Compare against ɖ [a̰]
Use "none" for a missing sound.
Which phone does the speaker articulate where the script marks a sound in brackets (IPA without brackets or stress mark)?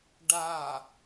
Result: a